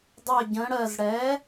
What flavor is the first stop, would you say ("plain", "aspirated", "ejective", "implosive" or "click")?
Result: plain